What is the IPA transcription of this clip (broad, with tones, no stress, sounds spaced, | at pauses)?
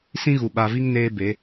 s ĩ˦ ɣ u˨ ɓ a˨ v i˦ ŋ n eː˦ b e˨˦